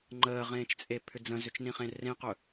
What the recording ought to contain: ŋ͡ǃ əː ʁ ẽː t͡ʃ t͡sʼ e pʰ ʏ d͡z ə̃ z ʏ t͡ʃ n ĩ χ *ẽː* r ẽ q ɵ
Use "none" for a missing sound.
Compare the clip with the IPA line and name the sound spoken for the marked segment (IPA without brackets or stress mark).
ẽ